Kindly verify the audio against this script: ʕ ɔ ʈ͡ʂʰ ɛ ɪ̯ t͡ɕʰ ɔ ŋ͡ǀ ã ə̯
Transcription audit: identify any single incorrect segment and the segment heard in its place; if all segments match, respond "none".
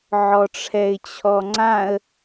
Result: none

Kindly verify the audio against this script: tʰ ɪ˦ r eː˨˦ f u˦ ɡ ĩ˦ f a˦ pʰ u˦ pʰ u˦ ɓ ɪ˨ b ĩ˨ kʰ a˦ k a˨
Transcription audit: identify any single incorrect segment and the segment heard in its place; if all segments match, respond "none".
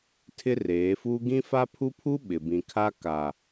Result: none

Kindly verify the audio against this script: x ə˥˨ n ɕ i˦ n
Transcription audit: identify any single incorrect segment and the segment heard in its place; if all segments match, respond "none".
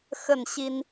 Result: none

